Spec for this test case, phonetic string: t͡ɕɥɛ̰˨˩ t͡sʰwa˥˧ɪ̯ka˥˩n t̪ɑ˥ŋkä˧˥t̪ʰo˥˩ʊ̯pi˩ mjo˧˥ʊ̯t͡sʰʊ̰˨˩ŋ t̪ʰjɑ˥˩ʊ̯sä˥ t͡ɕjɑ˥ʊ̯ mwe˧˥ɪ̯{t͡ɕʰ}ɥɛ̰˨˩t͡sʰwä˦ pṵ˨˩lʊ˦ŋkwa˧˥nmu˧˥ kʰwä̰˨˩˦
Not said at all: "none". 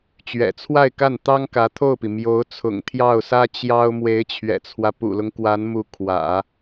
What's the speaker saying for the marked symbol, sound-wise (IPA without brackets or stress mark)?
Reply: t͡ɕʰ